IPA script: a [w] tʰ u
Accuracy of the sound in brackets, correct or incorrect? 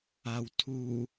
correct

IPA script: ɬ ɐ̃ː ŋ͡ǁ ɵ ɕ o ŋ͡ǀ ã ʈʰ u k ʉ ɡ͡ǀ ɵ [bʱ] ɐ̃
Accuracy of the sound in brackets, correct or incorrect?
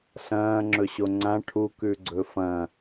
incorrect: f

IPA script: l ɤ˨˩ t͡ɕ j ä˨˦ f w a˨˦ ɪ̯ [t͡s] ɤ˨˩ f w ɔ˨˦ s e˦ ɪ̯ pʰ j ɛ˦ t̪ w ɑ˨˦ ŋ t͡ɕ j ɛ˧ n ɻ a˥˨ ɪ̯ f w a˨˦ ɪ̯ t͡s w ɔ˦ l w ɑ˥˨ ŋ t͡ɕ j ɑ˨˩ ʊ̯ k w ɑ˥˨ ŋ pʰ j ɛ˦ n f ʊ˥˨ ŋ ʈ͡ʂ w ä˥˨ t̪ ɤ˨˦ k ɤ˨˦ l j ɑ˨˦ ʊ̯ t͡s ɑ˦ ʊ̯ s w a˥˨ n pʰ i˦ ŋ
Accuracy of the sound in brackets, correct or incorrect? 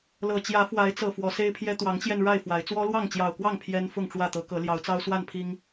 correct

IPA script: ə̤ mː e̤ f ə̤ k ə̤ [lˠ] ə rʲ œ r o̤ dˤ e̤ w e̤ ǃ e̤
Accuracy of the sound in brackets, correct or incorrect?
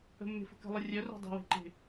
correct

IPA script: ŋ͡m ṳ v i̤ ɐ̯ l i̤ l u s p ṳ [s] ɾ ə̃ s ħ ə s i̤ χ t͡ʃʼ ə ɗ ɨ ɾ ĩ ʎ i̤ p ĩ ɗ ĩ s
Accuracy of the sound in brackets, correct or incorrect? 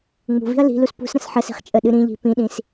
correct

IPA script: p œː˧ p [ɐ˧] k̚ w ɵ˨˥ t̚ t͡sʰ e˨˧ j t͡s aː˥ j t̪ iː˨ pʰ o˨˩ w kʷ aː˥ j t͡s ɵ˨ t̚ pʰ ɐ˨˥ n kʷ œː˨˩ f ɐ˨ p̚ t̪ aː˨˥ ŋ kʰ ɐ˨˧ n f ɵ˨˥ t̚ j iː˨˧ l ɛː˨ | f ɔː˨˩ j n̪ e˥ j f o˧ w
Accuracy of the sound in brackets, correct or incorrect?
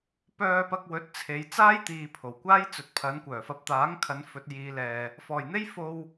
correct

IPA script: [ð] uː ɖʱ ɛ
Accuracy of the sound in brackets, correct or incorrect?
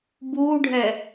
incorrect: b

